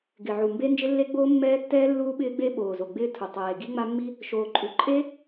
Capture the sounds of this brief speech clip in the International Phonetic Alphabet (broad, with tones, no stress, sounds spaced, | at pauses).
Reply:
ɡ ɪ˨˩ ʕ u˨˩ m b e˦˥ n d͡ʒ ɪ˦˥ lː e˦˥ ɡ͡b oː˦˥ mː ɛː˦˥ tː ɛː˦˥ lː uː˦˥ ɓ ɪː˦˥ ɡ͡b e˦˥ ɓ oː˨˩ z o˨˩ ɡ͡b ɪː˦˥ tʰ u˨˩ tˤ eː˨˩ ɡ i˦˥ ŋ͡m a˦˥ mː i˦˥ | ʃ oː˨˩ ǃʼ u˨˩ ǃʼ e˦˥